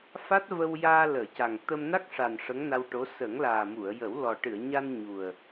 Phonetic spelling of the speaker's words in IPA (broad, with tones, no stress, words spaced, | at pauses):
fa˦˥t̚ və˧wjaː˧ləː˨˩˨ ca˨˩ŋt̪ə˧m na˦˥k̚ʂa˨˩n ʂə˧˥ŋna˧wʈo˧˥ sə˨˩˦ŋ laː˨˩mu˨˩˨ə̯jə˨˩˦w lɔ˨˩ʈɨ˨˩˨ə̯ɲa˧n ɲu˨˩ə̯